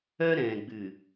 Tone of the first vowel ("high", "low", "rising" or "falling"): high